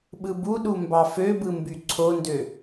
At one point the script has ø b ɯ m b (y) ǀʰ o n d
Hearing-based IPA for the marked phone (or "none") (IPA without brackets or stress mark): y